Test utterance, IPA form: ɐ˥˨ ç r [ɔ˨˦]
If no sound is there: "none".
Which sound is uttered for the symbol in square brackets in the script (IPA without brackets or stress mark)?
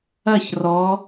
ɔ˨˦